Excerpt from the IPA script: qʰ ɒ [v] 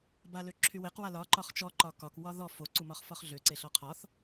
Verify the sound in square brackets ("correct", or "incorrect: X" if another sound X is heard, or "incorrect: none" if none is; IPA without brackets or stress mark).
incorrect: θ